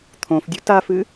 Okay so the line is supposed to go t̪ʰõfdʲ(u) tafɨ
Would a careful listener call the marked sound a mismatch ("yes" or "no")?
no